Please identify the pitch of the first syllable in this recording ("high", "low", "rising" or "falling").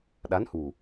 rising